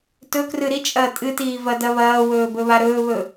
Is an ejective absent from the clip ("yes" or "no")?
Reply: no